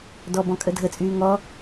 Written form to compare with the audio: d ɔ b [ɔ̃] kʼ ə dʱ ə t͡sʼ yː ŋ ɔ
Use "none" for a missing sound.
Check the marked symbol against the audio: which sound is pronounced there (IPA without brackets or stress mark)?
ɔ̃